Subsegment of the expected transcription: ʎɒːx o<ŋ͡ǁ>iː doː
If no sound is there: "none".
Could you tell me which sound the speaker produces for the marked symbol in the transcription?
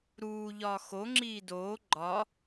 ŋ͡ǁ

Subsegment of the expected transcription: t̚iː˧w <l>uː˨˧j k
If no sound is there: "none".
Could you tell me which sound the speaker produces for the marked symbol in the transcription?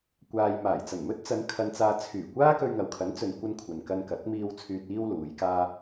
l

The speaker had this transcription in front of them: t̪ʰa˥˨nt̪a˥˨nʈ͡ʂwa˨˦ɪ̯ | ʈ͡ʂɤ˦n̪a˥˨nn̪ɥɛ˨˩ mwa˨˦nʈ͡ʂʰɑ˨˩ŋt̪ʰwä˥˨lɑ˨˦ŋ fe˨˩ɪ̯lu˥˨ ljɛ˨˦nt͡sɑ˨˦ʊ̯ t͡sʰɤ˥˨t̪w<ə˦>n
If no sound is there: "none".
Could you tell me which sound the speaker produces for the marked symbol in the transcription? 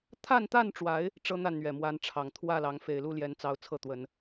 ə˨˦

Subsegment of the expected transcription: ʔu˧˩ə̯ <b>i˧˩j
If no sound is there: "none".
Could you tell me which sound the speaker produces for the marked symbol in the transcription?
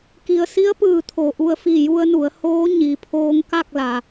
f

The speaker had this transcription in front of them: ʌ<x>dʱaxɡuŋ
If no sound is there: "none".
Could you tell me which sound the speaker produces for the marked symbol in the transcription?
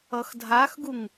x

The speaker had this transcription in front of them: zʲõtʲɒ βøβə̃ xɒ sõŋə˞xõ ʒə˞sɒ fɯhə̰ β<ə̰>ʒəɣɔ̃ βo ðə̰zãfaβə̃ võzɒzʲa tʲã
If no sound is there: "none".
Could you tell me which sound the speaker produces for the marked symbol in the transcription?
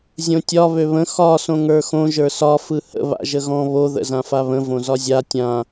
a̰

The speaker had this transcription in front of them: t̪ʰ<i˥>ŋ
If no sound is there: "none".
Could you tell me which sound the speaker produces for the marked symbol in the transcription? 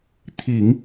i˨˩˦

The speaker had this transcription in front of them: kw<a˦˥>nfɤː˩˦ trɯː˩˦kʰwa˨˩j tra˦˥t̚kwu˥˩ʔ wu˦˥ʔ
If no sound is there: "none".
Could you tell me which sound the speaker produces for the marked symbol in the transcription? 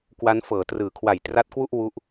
a˦˥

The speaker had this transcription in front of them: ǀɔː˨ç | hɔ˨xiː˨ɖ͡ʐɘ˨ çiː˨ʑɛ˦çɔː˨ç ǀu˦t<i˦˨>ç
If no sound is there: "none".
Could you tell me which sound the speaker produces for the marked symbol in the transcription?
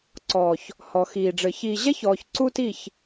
i˦˨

